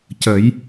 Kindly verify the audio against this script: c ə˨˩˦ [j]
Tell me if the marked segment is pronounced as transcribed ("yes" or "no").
yes